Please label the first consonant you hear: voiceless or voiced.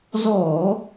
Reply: voiced